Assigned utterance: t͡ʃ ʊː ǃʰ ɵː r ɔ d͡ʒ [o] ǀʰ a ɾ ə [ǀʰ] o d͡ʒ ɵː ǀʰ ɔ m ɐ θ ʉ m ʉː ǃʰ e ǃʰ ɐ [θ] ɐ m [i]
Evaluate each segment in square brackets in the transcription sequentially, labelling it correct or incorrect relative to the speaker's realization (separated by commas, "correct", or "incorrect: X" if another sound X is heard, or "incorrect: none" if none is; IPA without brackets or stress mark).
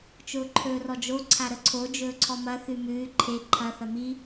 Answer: correct, correct, correct, correct